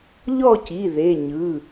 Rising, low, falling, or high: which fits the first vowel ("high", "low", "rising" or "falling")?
falling